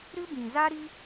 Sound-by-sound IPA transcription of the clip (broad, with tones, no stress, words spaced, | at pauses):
ɾɨ˦bĩ˨za˦ɾi˦